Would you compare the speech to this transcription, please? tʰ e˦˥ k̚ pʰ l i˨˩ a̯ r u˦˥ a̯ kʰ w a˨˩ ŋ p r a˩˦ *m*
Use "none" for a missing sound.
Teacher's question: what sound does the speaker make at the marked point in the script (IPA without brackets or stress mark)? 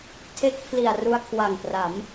m